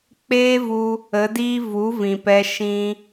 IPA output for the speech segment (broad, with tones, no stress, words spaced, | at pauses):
k͡peː˦vu˧ | ə˨˦diː˦ vu˨˦vĩ˨pɛ˧ ʃĩ˧